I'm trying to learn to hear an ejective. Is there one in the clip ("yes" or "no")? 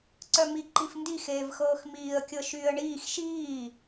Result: no